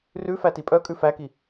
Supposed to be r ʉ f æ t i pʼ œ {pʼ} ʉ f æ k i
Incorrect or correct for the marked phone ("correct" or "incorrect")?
incorrect